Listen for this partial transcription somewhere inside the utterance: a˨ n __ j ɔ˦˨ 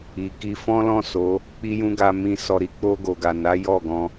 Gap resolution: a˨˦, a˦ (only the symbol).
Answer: a˨˦